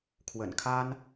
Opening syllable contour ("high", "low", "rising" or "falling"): low